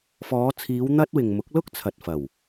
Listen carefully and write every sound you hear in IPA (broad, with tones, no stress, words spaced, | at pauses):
fɔː˨˧t͡sʰiː˨˧w n̪ɐ˥t̚ wɪ˨ŋmʊ˨˥k̚lʊ˥k̚ t͡sʰɐ˨t̚fɐ˨˩w